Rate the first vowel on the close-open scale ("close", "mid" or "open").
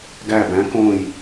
open